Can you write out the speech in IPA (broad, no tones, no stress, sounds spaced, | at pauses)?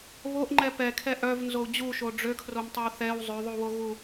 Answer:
β o ʔ ŋ͡ǃ ɛ p ɛ kʰ ɛ ʔ œ v n z o u̯ d͡ʑ u ʃ o ɖ͡ʐ ø kʰ r o m tˤ o w θ ɛ w zˤ ø ðˤ u w o ɣ u